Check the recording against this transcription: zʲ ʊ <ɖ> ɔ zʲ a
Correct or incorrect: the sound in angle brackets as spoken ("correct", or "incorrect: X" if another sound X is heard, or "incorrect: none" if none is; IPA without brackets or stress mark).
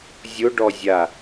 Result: correct